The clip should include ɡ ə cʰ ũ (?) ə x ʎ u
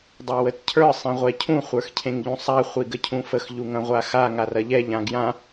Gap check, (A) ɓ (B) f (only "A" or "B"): B